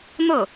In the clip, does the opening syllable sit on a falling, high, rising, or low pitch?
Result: falling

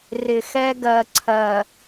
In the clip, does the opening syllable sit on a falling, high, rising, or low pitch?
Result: low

